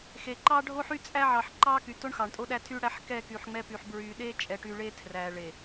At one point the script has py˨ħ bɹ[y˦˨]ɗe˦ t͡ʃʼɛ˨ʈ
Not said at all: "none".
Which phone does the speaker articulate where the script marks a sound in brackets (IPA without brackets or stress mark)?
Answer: y˨